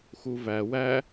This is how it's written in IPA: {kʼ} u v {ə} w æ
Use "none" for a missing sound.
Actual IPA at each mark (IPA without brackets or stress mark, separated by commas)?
x, æ